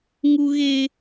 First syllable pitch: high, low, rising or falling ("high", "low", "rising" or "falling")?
high